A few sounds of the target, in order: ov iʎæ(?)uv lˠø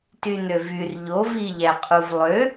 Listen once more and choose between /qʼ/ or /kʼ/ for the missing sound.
qʼ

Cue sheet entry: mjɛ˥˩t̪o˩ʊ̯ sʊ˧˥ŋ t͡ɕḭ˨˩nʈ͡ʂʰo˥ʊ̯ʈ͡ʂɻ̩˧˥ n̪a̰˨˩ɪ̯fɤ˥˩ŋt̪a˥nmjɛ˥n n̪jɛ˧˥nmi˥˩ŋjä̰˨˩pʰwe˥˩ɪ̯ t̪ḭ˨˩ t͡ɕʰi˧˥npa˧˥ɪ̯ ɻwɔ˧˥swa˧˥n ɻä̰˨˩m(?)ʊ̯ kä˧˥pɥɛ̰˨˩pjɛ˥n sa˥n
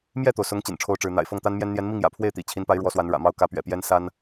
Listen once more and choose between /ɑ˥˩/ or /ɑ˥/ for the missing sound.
ɑ˥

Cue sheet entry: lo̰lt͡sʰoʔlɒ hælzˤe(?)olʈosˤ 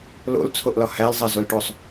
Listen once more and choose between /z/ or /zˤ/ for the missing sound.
z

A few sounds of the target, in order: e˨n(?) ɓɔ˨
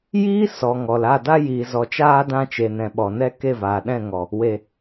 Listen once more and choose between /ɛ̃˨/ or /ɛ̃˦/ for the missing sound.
ɛ̃˨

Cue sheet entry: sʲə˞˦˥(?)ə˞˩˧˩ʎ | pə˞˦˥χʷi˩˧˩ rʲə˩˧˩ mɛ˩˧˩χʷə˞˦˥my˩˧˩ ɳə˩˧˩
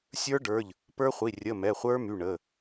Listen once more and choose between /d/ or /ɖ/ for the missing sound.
ɖ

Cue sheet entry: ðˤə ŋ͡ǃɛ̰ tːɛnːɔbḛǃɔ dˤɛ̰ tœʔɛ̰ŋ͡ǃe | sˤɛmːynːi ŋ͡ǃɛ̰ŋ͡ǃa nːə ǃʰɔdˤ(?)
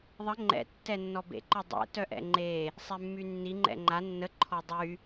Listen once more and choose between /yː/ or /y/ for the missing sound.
y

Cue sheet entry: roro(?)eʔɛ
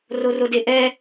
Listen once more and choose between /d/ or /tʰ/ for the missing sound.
d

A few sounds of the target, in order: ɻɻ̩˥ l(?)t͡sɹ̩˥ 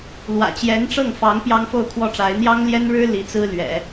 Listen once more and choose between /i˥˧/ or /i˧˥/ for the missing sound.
i˧˥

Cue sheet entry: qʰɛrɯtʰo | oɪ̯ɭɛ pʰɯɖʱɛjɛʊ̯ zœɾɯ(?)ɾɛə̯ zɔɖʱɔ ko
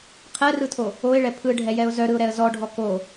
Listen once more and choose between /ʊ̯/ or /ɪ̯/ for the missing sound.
ʊ̯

